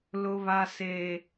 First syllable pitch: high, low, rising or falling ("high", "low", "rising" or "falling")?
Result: high